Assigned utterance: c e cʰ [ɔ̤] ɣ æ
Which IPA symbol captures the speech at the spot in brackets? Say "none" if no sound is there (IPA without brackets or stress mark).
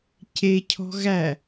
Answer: ɔ̤